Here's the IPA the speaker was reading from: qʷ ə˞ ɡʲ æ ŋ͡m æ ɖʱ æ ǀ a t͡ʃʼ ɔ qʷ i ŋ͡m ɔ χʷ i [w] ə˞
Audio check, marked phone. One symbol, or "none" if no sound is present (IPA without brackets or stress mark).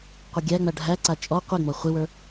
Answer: w